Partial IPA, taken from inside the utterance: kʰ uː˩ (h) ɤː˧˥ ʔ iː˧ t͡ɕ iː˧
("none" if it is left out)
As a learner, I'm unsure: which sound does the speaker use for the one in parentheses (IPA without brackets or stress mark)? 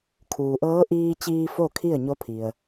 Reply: ʔ